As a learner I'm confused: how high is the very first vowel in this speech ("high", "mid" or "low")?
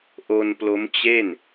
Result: mid